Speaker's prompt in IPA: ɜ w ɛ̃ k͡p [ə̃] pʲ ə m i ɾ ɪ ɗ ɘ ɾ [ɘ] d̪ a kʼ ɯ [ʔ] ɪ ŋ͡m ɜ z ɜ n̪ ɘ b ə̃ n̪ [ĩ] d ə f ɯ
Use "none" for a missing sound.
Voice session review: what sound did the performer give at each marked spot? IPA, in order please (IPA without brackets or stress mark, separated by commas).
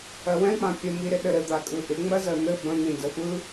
ã, ɘ, ʔ, ĩ